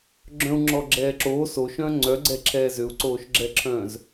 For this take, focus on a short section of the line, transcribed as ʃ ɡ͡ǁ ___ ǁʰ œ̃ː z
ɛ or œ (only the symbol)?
ɛ